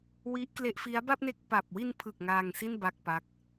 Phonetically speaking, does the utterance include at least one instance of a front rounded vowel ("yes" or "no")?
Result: no